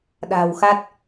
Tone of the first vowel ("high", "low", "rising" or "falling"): low